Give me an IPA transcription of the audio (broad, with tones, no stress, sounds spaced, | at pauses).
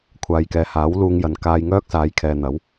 kʷʰ aː˨ j k ɛː˨ h aː˨˥ w l uː˧ ŋ j ɐ˨ n k aː˧ j ŋ œː˥ k̚ s aː˨˧ j kʰ ɛː˨ n̪ ɐ˨˥ w